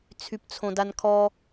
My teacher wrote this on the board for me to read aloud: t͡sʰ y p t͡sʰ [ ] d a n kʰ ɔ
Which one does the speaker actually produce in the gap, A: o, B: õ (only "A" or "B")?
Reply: B